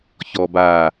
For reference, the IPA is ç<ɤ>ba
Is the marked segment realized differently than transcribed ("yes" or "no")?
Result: yes